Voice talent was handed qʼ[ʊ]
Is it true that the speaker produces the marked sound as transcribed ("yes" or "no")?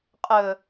no